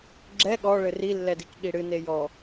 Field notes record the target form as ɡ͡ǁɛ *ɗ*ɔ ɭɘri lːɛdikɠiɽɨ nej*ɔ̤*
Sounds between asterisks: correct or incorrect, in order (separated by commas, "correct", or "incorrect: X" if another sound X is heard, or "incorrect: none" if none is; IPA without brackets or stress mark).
incorrect: ɠ, incorrect: ɔ